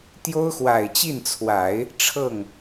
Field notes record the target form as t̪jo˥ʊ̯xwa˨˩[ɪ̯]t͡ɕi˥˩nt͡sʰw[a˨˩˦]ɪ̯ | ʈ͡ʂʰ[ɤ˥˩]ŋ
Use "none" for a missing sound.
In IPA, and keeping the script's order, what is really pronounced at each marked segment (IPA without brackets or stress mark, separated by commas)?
ɪ̯, a˨˩˦, ɤ˥˩